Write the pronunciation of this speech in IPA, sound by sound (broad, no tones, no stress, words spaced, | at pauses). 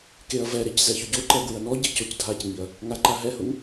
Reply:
keɐ̯vɛɾec zɛçʊɟoǃɛ ɡwɪɐ̯nɔɟi cocdʱacŋiɐ̯ | ŋaǃaɦɛhʊŋ